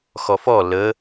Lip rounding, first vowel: rounded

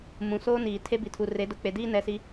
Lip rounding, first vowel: rounded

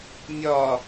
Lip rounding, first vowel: rounded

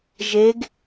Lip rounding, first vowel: unrounded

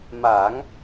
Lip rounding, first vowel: unrounded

